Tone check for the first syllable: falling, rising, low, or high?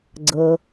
low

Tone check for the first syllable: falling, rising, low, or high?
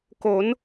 rising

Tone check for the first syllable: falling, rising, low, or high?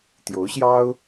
rising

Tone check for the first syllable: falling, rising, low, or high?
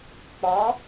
rising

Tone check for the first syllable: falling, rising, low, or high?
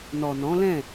low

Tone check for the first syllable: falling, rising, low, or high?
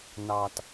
low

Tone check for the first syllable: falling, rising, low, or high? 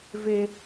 high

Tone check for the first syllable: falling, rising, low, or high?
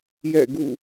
falling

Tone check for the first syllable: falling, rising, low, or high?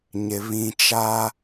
low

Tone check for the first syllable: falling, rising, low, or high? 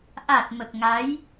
low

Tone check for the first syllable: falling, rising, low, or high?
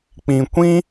low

